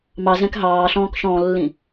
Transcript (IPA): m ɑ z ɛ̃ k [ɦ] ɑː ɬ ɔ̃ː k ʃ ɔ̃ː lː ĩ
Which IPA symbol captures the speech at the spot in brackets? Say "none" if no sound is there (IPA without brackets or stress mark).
ɦ